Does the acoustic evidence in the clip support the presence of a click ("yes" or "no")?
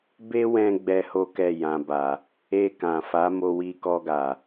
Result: no